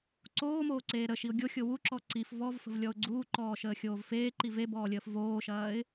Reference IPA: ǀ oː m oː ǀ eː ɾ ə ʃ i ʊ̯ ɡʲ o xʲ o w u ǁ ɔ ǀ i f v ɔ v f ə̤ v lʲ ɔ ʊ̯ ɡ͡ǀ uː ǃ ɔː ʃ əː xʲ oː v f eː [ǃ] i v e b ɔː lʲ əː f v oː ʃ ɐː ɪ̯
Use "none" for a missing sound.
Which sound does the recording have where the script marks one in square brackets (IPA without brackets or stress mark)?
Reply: ǃ